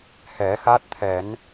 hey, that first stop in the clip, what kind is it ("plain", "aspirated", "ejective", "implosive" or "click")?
plain